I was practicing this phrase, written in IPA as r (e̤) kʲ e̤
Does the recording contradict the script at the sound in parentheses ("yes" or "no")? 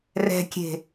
yes